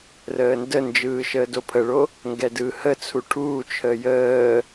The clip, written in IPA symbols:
r əː n d ə n d͡ʒ ɯː ʃ əː d o pʰ ə ɭ o | ŋ ɡ ɛ d ɯː h ə t͡sʰ u ʈʰ uː t͡ʃʰ əː j əː

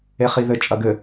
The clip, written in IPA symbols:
e χ i ð ɘ t͡ʃʼ ɐ ɡ ɘ

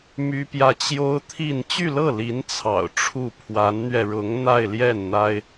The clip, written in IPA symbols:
m y˥ p j ä˥˩ t͡ɕ j o˥ ʊ̯ t̪ʰ i˥˧ n t͡ɕ y˥˧ l ɤ˥˩ l i˧˥ n t͡sʰ ɑ̰˨˩ ʊ̯ ʈ͡ʂʰ u˥˩ pʰ w a˧˥ n n̪ ɥ ɛ˧ ɻ ʊ˧˥ ŋ n̪ a˥˧ ɪ̯ l j ɛ˥˩ n n̪ a˥ ɪ̯

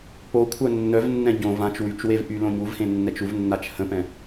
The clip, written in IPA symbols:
p o kʷʰ œ nː œ v nː ɛ̃ ɟ õ v ã t͡ʃ w y t͡ʃ w e v ʔ y l õ ɲ u v h ẽ nː ɛ t͡ʃ u v nː a t͡ʃ h ə̃ p ɛ̃

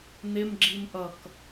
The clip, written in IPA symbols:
n̪ ɪ m ɡ͡ǁ i m ʔ ʌ k

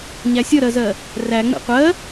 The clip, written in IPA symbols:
ɲ æ sʲ ʌ ɾ ɜ z ɜ | r æ ŋ͡m ḛ qʷ ɜ

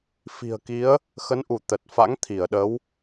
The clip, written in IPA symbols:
f i̤˨˩ ə̯ k i˨˦ ə̯ | x ə˨˦ n ʔ u˧˩ t̪ ə˨˩ t̚ f a̰˧˥ ŋ t̪ʰ i˧˩ ə̯ ɗ ə˨˦ w

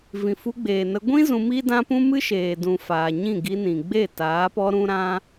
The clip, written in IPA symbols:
v ĩ˨ f u˧ ɡ͡b eː˨ n ə˧ ɡʷ ĩ˦ z ũ˧ m i˦ d ã˦ p ũ˦ m ɨ˦ ʃ eː˨ d ũ˨ f aː˨ ɲ ĩ˦˨ ɡ i˧ n ĩ˨ ɡ͡b e˦˨ t aː˨˦ p ɔ˦ ɾ ũ˦ ɾ ã˦

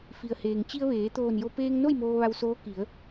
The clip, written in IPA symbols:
f i˩ ə̯ h eː˩ ŋ t͡ɕ i˧ ə̯ ʋ eː˩˧ t̪ oː˧˩ n j o˧ p eː˧ ŋ n o˥˨ j m oː˧ ʋ a˧ w s oː˧˥ k i˩˧ ə̯

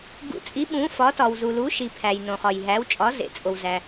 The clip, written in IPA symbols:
ɡ ṵ˨˥ t͡sʼ i˨˥ ɓ ũ˨˥ f ɒ˨˥ t ɒ˨ w z u˨ l u˨˥ ʃ i˨ pʰ æ˨ j n õ˨ χ ɒ˨ j ɦ æ˨˥ w t͡ʃʼ ɒ˨˥ z ḛ˨ t͡sʼ o˨ w z æ˨

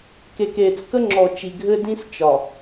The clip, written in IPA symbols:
k e˨ k eː˨ t͡s k ə˦ ŋ͡ǁ ɔ˨ t͡ʃ i˨ ɡʱ ɘ˦ d ĩ˦ s t͡ʃ ɒ˨

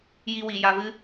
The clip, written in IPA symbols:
j i˧ w i˨ j a˧ v ɨ˦

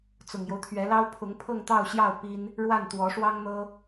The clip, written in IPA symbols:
t͡s ʊ˨˩ ŋ j o˦ ʊ̯ t̪ʰ ɥ ɛ˧˥ l ɑ˥ ʊ̯ pʰ ʊ˧˥ ŋ pʰ ɤ˥˧ ŋ t̪ ɑ˥˧ ʊ̯ ɕ j ɑ˥˩ ʊ̯ p i˥ n | ɻ w a˥˩ n t̪ w ɔ˧˥ ʂ w ɑ˥ ŋ n̪ ɤ˥

